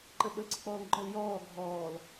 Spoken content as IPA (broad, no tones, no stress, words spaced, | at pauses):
ǃəɓə ǀək͡pɔːŋɡ͡ǃɔl jɔː ɡʱɔːl